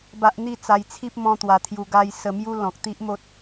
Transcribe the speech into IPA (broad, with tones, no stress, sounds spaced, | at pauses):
b a˦ ʔ n̪ i˥˧ t͡s a˧ j t͡sʰ i˦ p̚ m ɔ̃˦ t̪ w a˧ t̪ʰ j u˧ ɡ a˦ j s ə˧ m j u˦ l ɔ̃˨ k̚ t̪ i˦ ʔ m o˦ t̚